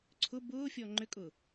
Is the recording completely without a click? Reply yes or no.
no